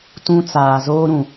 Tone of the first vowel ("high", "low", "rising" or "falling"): high